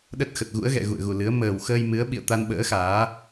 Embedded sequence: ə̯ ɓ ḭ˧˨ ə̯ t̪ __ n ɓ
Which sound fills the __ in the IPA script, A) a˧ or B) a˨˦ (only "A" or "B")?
A